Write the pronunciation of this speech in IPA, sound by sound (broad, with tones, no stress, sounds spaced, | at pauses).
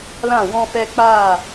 l ã˦˨ w ɔ̃˧ f ɛ˧ k͡p aː˦˨